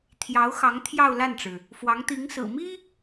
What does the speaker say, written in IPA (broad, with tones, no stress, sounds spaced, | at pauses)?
t̪ʰ j ɑ˧˥ ʊ̯ x ɑ˧˥ ŋ t̪ʰ j ɑ˥˧ ʊ̯ l a˥˩ n ʈ͡ʂ ɻ̩˩ | f w ɑ˧˥ ŋ t̪ i˧˥ ŋ s ɹ̩˨˩ m i˥